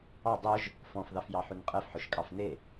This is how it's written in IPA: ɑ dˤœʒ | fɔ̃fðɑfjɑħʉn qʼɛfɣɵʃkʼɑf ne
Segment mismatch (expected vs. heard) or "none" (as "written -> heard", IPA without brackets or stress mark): ɣ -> ħ